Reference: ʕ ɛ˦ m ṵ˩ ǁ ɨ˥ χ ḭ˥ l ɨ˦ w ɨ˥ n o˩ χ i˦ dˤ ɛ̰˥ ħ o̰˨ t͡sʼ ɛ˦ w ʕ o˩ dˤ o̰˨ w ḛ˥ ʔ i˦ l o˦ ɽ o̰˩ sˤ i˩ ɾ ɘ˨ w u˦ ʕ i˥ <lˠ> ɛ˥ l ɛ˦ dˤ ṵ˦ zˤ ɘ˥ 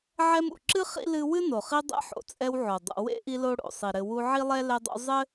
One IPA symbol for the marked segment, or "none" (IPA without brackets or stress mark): lˠ